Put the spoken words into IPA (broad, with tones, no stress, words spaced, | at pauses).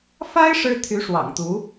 fa˥ɪ̯ ʂɻ̩˥t̪ʰy˧˥ʂwɑ̰˨˩ŋt̪u˧˥